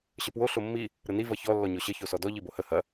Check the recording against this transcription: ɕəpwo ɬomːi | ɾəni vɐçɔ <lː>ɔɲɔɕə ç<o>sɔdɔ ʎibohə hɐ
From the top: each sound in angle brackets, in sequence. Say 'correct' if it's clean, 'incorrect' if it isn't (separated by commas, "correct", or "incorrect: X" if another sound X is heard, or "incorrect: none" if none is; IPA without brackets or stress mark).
correct, correct